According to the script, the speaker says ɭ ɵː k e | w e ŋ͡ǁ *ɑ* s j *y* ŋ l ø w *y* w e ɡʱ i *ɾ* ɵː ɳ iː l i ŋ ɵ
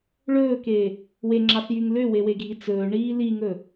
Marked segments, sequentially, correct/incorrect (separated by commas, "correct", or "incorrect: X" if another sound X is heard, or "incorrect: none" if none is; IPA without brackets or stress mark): correct, correct, incorrect: e, incorrect: t͡s